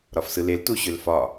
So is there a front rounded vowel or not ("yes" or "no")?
yes